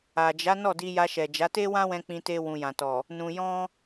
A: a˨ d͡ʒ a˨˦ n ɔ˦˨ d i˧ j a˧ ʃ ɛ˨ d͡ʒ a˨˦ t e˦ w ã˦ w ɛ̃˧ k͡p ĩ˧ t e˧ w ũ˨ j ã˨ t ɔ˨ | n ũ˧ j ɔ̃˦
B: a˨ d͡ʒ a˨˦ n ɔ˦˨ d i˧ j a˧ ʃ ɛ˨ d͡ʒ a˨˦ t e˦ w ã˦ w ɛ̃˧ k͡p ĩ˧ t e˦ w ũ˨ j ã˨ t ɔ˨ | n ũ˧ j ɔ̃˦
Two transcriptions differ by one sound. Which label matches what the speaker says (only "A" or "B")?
A